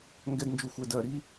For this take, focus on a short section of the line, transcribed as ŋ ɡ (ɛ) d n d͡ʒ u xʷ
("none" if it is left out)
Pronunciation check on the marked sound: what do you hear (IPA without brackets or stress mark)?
ɛ